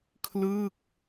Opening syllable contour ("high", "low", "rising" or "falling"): falling